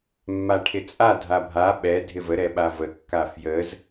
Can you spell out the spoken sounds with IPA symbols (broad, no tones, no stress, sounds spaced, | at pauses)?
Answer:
mː a ʈʰ ɪ t͡sʼ a dʱ a bʱ a ɓ ɛ dʱ ɪ v ə ɾ ɛ ɓ a v ə kː a f j ə z